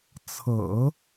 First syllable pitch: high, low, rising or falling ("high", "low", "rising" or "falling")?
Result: low